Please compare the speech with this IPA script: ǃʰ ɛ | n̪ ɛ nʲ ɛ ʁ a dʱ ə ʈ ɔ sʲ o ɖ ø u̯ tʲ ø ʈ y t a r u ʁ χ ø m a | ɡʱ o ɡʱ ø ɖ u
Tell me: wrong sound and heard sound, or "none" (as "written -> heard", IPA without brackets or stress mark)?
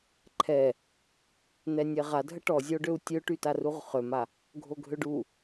sʲ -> zʲ